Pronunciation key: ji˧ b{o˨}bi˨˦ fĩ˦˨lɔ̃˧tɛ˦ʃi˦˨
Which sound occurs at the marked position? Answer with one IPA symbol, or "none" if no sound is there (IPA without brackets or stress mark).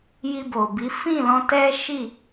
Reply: o˨